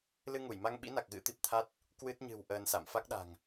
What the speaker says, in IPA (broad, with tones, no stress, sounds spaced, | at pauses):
l ɨ˧ ŋ u˧˩ j m a˧ ŋ ɓ ḭ˧˥ n a˨˩ k̚ ɣ ɨ̰˧˥ t̪ i˨˩ p̚ t̪ʰ a˦˥ t̚ | k w ɨ˦˥ t̚ ɲ ɨ̤˨˩ w ʔ əː˧ n s a̰˧˨ m f a˦˥ k̚ ɗ a̤˨˩ ŋ